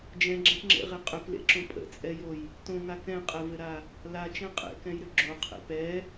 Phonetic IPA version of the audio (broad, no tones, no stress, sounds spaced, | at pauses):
d͡ʒ ɛ̃ ɡ͡ǁ ɛ̃ p ŋ͡ǁ ḛ ʁ e qʼ ʏ p l ḛ ǁ õ pʼ ə̰ t͡sʼ ɛ j o j | t õ ŋ a k ɛ̃ qʼ ɛ v ɘ ɾ a | l a t͡ʃ ɛ̃ qʼ ḛ k ɛ̃ j ɾ ʏ ɡ͡ǁ o qʰ ḛ p ɛ